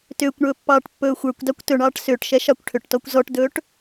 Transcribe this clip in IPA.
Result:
t ʏː kʷ ɳ ɵː pː ɑː ʈ pː ɵː xʷ ə˞ kʷ d ɑ kʷ t ɵ ɳ ɑː ʈ s ʏː ʈ ʃ ɛ ʃ ɑ kʷ ʈʰ ʏ ʈ t ɔ kʷ z ɔ ʈ d ɵː ʈ

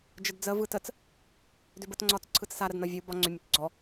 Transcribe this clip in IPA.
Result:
d͡ʒ ə d d͡z ə v ɯ t ə t͡s | d ʏ b ə t ŋ͡ǀ ɒ t͡s ǀʰ ɯ t͡s s a ɾ ə d n ɒ vʲ ɯ b ɒ ŋ͡ǀ ʏ mʲ ə t͡s ɡ͡ǀ ɔ

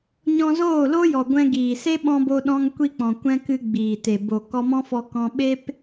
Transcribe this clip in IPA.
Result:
ɲ ɔ̃˧ z oː˦˨ l o˦ j ɔ˨ ɡʷ ɛ̃˧ ɡ iː˨ s e˦ ɓ ɔ̃˧ b o˧ ɗ ɔ̃˧ ŋ kʷ i˦ k͡p ɔ̃˨ kʷ ɛ̃˦ k ɨ˧ ɡ͡b iː˨ t e˨ b o˨ k ɔ˧ m ɔ̃˦ f ɔ˧ k ɔ̃˧ ɓ e˦ p

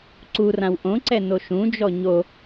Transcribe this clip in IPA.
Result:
ǀ u r ã w ʔ õ ǀ ɛ n o ʃ ũ d͡ʒ ɔ ɲ o

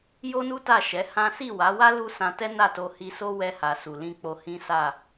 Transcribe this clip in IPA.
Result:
j o˦ n u˦ t a˦˨ ʃ ɛ˨˦ h ã˦ s i˦˨ w a˨˦ w a˦ l u˦ s ã˧ t ɛ˦ n a˦˨ t o˧ h i˧ s o˦ w ɛ˧ h a˨ s u˨ l ĩ˧ k͡p o˧ h ĩ˦ s a˦˨

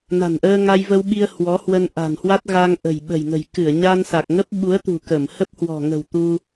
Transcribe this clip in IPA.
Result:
n a̤˨˩ n ʔ əː˧ ŋ a˧ j v ə˧ w ɓ i˧ ə̯ h w ɔ˨˦ h w ə˧ n ʔ a̤˨˩ n h w a˦˥ t̚ ɣ a˧ ŋ ʔ ə̤˨˩ j ɓ ə̤˨˩ j ŋ ə̤˨˩ j k ɨ˧˩ ə̯ ɲ a˧ n s a˨˩ k̚ ŋ ə˦˥ p̚ ɓ u˨˦ ə̯ t̪ ṳ˨˩ k ə˧˩ m h ə˦˥ p̚ h w ɔ̤˨˩ ŋ ə̤˨˩ w t̪ u˧

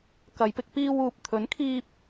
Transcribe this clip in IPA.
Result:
k ɐ˨˧ j p ɪ˧ k̚ p iː˧ w uː˨ p̚ t̪ʰ ɵ˨˥ n kʰ iː˧ p̚

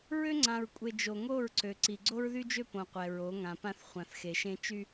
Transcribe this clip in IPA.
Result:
ɹ ø˦ ŋ͡ǀ ã˨ ɹ kʷʼ e˨ d͡ʒ o˨ ŋ o˦˨ ɹ ǀ ø˨ ǀ i˨ ɡ͡ǀ o˦ ɹ ð y˦ d͡ʒ ø˦ p õ˨ qʷ ɛ˨ ɹ o˨˦ ŋ ã˨ p ã˦ θ χʷ ã˨ θ x e˨ ʃ ẽ˦ t͡ʃ y˦

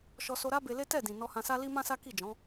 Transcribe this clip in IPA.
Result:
ʃ ɔ˧ s o˧ ɾ a˦ b e˧ l e˦ t ɛ˦˨ d ĩ˨ n ɔ˧ h ã˧ s a˦ l i˦ m ã˦ s a˦ k i˦˨ d͡ʒ ɔ̃˨˦

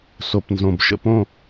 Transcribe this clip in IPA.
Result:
s o˩ p n z õ˩ b ʃ ə̰˧˩ p õ˧˩

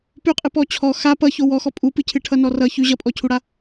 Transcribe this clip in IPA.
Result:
p ʉ qʼ ɨ p ɔ t͡ɕʰ ɔ x a p ʌ ç o w ɔ x ɔ pʼ u p ɨ cʰ ɨ ʈʰ ʌ n ɔ r ʌ ç ʉ ʑ ʌ pʼ ɔ cʰ u ɽ a

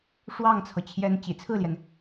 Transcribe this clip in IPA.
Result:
ʂ w ɑ˥˩ ŋ t͡sʰ ɤ˩ t͡ɕʰ j ɛ˧˥ n t͡ɕ ḭ˨˩ t͡sʰ ɹ̩˥˩ l j ɛ˩ n

